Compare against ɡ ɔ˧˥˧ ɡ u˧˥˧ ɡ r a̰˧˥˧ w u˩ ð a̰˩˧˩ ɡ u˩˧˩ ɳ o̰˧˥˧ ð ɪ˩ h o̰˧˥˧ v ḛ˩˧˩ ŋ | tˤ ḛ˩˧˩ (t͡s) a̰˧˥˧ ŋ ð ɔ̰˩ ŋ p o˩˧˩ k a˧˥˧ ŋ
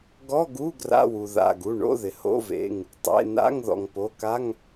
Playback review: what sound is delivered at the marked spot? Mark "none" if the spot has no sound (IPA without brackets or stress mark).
n